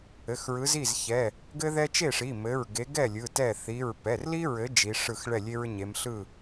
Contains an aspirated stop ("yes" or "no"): no